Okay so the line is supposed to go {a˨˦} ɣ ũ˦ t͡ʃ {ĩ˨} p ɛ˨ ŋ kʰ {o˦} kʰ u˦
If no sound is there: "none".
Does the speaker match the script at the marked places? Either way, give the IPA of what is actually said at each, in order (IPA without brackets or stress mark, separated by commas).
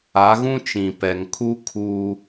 a˨˦, ĩ˨, u˦